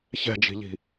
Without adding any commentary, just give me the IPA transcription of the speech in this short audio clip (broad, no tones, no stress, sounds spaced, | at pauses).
ç ɛ̤ d͡ʒ i̤ ʎ i̤